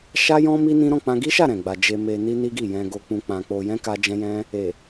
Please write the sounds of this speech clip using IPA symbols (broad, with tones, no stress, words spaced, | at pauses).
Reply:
ʃa˦jɔ̃˦ mi˦nĩ˦ ɾɔ̃˦˨k͡pã˧ɡi˦ʃa˦˨ ɾɛ̃˨ɡ͡ba˧ d͡ʒe˧me˧ ni˦ni˦ɡi˦˨ jɛ̃˧ɡo˧k͡pũ˧ k͡pã˧ k͡po˧jɛ̃˦ ka˦d͡ʒɛ̃˦jɛ̃˦ | e˨